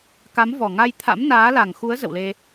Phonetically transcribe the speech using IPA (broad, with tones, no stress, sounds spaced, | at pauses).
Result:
k a˨˦ m v ɔ˨˩ ŋ a˧ j t̪ʰ a̰˧˥ m n aː˨˦ l a˨˩ ŋ x u˨˦ ə̯ z ə̰˧˨ w l e˧